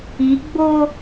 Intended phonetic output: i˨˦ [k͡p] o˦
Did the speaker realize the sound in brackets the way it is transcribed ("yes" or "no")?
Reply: no